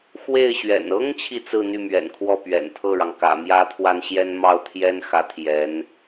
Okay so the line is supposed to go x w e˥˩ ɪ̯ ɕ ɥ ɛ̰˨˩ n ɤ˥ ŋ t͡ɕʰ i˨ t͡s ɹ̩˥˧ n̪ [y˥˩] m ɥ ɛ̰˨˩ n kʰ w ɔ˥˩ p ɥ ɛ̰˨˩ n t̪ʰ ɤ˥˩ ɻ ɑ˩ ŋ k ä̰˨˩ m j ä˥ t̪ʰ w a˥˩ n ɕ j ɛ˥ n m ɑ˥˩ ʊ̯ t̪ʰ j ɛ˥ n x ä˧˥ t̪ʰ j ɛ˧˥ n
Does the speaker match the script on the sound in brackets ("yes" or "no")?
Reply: yes